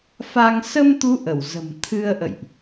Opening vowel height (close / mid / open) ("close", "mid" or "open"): open